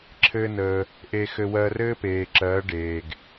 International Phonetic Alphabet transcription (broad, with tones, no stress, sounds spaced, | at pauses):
ǁʰ ɘː˦ n əː˧ | ʔ e˧ x ɘ˧ w ɜ˧ r ɘː˦ p eː˨ ǁ ɜː˨˦ ɖ eː˨ ɡ